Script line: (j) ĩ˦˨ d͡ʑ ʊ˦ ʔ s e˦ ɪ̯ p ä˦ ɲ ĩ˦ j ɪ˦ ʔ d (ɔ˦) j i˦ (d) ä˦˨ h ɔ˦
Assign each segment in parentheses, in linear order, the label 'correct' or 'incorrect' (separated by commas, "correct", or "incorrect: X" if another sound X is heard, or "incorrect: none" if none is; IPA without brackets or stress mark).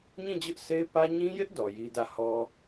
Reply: incorrect: ɲ, incorrect: ɔ˨, correct